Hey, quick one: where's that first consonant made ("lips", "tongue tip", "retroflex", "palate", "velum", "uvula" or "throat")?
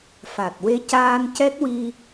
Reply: lips